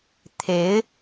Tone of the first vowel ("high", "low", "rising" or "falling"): rising